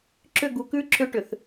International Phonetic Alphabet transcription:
ǁʏ˦˨ɡu˨kʉ˦ ǁʰʏ˦ ʈʏ˨θ

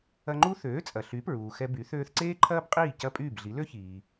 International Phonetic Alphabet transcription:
ɐ˧ŋ͡ǃu˥ θøː˩˥t͡sʼɐ˩ ɬy˩˥pɹuː˩ xɛ˧by˩˥ θøː˧θǀeː˥ǃʰɐː˥bqʼiː˥˩ cɐ˥˩pʼyː˥˩bɮi˩˥ lø˥çiː˩

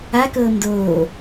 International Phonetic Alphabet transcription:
a kɤːmdoː

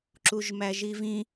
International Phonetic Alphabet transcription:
ǁuʒmæʒivĩ

